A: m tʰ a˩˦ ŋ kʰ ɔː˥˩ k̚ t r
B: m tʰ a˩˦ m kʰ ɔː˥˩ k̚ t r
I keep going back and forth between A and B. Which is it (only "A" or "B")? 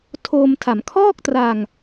B